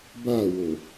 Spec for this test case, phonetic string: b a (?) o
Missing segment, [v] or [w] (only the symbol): w